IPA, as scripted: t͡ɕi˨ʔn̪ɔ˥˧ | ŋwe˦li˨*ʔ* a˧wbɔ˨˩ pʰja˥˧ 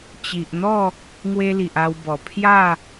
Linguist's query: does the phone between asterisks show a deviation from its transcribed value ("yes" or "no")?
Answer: no